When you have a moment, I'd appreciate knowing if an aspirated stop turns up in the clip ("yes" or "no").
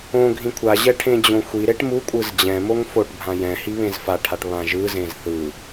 yes